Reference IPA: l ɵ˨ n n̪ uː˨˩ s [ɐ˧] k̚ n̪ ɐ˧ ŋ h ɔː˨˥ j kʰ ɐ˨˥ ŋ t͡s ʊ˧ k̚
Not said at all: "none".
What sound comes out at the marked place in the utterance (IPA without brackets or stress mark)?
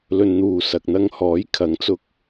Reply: ɐ˨